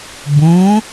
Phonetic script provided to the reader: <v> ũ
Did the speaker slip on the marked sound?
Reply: yes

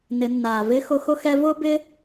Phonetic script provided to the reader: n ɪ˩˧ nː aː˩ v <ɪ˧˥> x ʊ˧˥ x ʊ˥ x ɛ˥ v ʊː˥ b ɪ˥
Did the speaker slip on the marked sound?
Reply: no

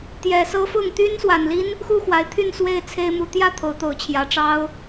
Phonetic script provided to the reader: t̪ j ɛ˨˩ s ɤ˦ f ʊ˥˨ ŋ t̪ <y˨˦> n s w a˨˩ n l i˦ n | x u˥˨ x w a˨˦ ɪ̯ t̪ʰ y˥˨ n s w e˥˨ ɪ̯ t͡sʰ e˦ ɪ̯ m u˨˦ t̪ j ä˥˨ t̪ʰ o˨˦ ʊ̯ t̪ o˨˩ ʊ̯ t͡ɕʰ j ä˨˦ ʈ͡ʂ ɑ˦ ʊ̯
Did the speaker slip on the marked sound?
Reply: yes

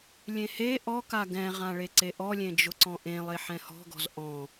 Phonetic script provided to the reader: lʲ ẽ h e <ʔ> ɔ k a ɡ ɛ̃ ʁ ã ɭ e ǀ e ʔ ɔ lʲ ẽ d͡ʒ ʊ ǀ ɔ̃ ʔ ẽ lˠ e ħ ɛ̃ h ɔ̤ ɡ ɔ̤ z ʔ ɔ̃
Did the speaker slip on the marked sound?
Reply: no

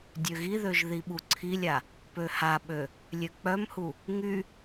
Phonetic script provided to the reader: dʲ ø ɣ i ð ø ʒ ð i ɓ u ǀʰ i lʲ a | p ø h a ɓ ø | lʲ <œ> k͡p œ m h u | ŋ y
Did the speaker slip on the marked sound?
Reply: yes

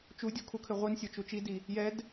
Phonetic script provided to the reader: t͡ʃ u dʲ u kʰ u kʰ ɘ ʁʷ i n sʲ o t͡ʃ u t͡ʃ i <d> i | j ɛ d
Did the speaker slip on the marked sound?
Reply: no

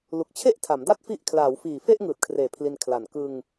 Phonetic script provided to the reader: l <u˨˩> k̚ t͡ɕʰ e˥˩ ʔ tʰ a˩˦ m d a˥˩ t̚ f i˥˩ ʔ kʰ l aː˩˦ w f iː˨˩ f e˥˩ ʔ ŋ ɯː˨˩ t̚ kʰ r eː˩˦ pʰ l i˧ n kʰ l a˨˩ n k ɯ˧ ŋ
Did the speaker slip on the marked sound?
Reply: no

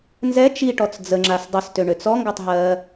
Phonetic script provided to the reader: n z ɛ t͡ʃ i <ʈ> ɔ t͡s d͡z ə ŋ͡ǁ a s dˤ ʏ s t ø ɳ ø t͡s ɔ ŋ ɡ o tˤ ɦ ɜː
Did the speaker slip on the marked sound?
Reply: no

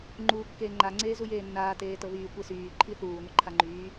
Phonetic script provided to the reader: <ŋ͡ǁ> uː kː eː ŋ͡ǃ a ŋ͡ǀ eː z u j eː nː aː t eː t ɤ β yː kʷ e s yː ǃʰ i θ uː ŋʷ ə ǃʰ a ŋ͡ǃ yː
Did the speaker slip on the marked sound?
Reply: yes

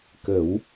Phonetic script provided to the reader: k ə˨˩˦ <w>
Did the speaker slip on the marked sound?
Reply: no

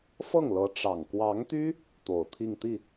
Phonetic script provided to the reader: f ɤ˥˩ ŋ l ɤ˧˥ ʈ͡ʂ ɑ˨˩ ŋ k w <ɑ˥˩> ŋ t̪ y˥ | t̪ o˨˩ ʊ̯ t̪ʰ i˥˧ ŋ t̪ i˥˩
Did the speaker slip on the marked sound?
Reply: yes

